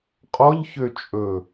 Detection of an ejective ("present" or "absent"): present